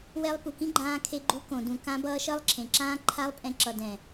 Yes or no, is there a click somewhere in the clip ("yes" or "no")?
yes